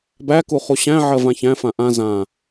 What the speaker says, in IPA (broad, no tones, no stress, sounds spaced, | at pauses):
b æ k u χ u ɕ æ̃ ʕ ɜ v ã ç æ̃ f ã ʔ ã z ã